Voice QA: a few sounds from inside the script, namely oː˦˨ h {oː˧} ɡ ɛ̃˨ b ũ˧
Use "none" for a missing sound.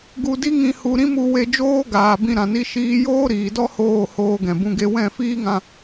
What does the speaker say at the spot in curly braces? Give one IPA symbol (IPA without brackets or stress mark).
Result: oː˧